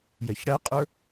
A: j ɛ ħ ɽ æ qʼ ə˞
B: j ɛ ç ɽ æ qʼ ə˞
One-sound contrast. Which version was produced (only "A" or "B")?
B